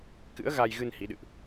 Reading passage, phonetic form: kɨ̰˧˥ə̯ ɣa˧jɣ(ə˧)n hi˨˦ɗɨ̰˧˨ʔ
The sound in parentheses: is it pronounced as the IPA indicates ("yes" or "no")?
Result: no